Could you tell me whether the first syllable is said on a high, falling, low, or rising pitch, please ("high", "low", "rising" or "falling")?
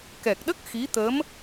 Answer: low